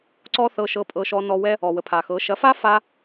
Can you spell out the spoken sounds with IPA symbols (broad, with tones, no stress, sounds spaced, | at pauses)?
ǀ ɔ˦ θ ɤ˧ ʃ ɤ˧ pʼ ɤ˧ ʃ ɔ˧ n ɔ˧ w ɛ˦ | ɔ˨ w ə˨ pʰ a˨ x ɤ˨˦ ʃ ɐ˨˦ f a˦ f a˦